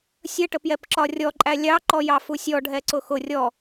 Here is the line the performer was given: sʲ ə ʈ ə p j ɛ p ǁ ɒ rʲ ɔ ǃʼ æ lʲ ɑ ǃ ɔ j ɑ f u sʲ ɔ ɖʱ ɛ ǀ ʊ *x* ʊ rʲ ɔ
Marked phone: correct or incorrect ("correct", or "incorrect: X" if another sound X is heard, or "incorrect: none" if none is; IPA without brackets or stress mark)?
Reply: correct